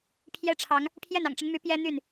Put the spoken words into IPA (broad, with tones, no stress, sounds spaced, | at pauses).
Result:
pʰ j ɛ˦ ʈ͡ʂʰ ɑ˨˦ ŋ | pʰ j ɛ˥˨ n ɑ̰˨˩ ŋ ʈ͡ʂ ə˦ n m y˨˦ p j ɛ˦ n̪ y˥˨ n